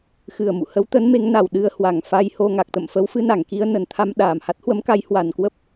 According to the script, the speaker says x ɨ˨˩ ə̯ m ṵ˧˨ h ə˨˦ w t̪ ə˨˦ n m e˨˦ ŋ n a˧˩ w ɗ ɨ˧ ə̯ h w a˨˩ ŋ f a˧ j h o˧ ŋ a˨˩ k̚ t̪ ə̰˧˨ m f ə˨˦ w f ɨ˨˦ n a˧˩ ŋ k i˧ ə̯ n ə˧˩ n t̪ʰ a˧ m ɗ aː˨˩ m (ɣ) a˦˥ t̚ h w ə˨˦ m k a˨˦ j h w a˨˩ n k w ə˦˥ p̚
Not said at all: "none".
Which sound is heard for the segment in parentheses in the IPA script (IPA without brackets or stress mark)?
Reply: h